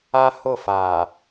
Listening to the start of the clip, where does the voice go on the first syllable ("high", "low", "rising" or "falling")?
high